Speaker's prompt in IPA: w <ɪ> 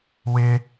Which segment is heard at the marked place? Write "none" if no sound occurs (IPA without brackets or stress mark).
ɪ